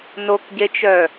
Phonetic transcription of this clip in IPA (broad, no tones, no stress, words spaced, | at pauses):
nokɟet͡ʃœ